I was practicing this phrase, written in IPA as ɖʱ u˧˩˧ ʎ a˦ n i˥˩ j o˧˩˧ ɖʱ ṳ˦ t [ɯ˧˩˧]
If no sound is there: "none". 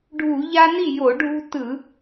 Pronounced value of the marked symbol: ɯ˧˩˧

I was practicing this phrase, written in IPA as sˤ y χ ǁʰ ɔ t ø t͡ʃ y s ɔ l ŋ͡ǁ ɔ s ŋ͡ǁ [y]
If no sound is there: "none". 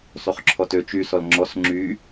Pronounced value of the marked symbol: y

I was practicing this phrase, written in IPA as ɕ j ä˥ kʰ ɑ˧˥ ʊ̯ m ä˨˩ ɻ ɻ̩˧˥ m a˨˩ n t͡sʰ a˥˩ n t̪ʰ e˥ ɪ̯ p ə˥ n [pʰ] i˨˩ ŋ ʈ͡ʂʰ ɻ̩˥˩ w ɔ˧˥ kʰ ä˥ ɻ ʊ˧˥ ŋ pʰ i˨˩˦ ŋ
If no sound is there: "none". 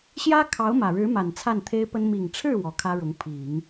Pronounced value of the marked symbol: m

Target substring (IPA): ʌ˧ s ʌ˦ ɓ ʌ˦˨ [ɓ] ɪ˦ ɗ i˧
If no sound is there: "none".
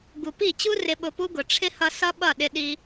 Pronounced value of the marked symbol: ɗ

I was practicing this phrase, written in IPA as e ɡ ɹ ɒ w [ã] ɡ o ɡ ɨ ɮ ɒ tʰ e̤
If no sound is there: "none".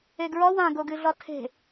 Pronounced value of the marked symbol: ã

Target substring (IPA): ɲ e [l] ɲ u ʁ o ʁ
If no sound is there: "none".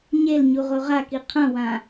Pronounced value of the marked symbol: l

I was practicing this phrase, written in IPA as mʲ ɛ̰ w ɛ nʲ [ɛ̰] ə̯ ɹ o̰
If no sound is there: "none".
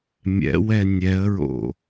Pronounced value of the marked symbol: ɛ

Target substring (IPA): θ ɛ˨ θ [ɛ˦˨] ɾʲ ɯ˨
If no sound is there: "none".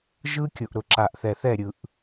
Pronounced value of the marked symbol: ɛ˦˨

